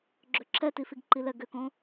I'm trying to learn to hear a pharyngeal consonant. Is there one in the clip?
no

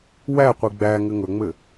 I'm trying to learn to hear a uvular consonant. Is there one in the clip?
yes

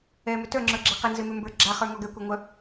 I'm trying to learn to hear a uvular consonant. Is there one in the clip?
yes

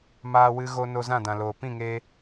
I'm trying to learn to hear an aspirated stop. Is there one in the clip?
no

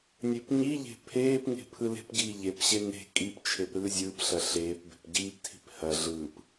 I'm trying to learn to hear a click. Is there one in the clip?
no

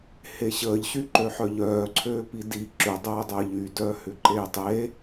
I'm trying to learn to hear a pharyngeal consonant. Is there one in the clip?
yes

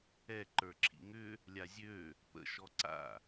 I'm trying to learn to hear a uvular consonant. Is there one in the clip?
no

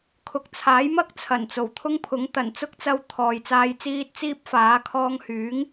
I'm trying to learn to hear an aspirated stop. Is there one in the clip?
yes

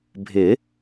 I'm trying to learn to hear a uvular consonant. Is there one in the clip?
no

